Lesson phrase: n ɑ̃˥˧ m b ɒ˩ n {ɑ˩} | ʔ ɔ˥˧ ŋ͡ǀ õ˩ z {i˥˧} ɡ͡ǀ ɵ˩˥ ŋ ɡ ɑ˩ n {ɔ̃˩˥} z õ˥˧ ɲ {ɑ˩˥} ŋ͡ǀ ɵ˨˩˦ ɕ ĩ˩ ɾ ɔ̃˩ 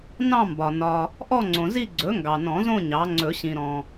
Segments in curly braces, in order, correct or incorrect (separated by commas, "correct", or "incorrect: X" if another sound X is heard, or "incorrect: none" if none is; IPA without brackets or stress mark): incorrect: ɒ˩, correct, incorrect: ɔ̃˨˩˦, correct